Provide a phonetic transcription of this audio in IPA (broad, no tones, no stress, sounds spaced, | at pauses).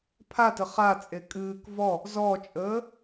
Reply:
pʰ a t ə χ a t͡sʼ e kʼ ɨː k v ɔ | z ɔ t͡ʃʼ əː